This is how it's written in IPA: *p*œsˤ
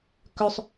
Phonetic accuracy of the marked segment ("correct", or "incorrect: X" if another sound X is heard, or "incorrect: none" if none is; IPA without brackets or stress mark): incorrect: k